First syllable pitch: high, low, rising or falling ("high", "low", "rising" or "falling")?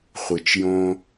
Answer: low